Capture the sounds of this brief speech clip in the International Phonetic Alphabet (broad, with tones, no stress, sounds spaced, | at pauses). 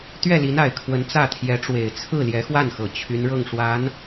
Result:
t̪ ɥ ɛ˥˩ l i˧˥ n a˨˩ ɪ̯ kʰ w ə˧˥ n t͡s ä˥˩ t̪ʰ j ɛ˧˥ ʈ͡ʂ w e˨˩ ɪ̯ t͡sʰ ɹ̩˥˩ l j ɛ˧˥ x w a˥˩ n x ɤ˨˩ t͡ɕʰ y˧˥ n ɻ ɤ˥˩ ŋ ʂ w a˧˥ n